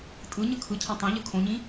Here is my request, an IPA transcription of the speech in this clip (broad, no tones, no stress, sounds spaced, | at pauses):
tʼ ɯ ɲ ɯ kʰ ɯ cʰ ã tˤ ĩ ʎ ɯ kʰ õ ɲ ĩ